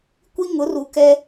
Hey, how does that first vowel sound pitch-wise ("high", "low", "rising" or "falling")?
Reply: high